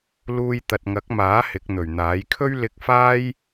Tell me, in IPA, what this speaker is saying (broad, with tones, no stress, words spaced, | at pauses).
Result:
luː˧jt̪ɐ˨t̚ŋɐ˨˥k̚maː˨˥ hɪ˨˥k̚n̪ɵ˨˩ɥn̪aː˨˥j kʰɵ˥ɥlɪ˧k̚faː˥j